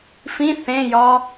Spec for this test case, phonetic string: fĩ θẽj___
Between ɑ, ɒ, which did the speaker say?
ɒ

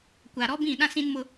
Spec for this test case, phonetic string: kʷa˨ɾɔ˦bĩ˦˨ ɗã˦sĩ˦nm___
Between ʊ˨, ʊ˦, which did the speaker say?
ʊ˦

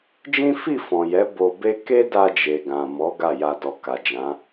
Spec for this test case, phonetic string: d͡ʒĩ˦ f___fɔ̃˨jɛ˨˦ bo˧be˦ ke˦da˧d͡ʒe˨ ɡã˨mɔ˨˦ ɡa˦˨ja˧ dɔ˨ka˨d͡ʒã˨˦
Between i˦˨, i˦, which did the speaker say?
i˦˨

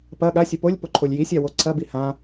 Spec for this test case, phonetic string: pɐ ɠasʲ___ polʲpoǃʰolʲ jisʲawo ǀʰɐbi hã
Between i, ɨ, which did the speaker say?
ɨ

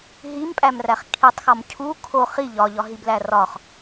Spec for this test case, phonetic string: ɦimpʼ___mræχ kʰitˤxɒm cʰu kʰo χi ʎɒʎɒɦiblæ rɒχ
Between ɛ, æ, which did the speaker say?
æ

